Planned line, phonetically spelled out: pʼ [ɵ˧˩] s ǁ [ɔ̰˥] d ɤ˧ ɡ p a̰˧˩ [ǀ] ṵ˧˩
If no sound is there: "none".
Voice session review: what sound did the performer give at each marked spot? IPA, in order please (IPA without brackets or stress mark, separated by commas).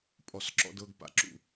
ɔ˧˩, ɔ̰˧, ǁ